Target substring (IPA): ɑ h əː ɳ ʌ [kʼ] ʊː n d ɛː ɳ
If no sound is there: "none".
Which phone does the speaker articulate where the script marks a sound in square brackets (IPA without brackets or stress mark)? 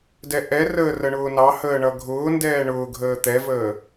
ɡʱ